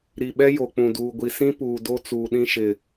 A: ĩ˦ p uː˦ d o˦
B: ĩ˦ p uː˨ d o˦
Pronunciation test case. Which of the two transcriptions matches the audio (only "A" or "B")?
B